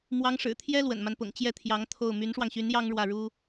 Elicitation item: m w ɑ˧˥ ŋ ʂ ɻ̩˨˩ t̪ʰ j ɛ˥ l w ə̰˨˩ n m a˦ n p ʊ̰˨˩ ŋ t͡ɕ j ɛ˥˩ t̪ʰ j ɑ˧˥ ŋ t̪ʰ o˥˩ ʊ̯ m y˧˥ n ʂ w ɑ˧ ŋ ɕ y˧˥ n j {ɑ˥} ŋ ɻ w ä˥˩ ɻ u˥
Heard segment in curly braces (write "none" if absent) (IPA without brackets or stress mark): ɑ˥